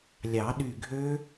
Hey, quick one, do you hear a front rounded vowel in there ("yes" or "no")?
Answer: yes